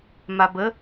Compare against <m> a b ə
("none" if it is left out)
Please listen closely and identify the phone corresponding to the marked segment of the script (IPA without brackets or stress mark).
m